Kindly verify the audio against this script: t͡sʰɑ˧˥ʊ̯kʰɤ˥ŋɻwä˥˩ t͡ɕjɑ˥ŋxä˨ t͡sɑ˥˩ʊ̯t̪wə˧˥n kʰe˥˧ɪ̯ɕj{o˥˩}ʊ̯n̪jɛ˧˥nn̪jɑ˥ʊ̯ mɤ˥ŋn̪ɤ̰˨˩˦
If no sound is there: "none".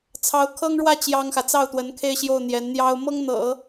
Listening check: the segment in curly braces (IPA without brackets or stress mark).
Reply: o˥˩